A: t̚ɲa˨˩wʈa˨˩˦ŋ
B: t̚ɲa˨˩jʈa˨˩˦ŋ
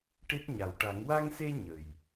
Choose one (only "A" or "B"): A